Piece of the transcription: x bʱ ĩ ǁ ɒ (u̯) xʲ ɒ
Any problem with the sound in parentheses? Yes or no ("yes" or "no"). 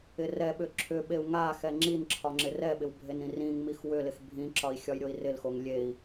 yes